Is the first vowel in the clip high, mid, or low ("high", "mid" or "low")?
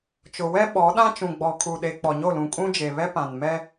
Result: high